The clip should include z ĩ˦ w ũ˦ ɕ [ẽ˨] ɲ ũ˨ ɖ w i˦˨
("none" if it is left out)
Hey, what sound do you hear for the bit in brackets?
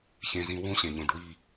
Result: ẽ˨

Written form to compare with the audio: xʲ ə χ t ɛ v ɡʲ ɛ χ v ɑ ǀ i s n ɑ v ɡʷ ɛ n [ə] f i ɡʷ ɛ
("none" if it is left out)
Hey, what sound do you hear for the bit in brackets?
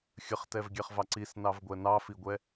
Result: ɑ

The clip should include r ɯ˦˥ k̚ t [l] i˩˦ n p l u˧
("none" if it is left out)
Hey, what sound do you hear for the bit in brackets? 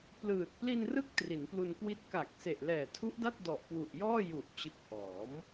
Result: r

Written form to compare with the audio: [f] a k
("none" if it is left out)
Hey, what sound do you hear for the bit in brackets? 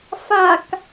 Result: f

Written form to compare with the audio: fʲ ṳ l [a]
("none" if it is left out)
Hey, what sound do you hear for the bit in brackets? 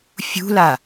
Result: a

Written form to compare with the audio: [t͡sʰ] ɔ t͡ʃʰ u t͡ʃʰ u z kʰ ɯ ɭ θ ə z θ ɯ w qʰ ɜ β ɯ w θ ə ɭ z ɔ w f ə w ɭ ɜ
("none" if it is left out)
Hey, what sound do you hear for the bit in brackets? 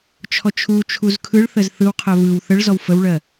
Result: t͡ʃʰ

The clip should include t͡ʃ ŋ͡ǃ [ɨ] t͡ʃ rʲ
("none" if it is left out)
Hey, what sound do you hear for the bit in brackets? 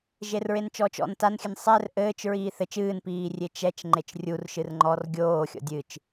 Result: e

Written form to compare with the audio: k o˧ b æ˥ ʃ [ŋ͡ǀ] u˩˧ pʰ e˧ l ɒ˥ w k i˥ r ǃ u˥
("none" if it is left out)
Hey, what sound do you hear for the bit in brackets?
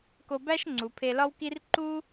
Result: ŋ͡ǀ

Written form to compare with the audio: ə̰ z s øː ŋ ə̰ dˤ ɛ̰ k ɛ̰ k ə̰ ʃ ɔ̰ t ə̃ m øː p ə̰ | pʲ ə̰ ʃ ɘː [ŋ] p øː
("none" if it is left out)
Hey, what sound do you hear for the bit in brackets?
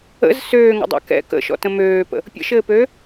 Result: none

